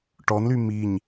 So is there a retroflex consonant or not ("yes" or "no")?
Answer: yes